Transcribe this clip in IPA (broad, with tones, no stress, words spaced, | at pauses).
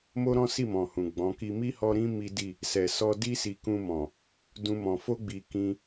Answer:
mo˦ɾɔ̃˦si˦˨mɔ̃˨ hũ˨ɡ͡bɔ̃˨˦ki˦ mi˦hɔ˧ɾĩ˦ mi˦di˦˨ | sɛ˨ sɔ˧di˦ si˧ kũ˧mɔ̃˨ | dũ˧mɔ̃˨ fo˧ɡ͡bi˨ kĩ˧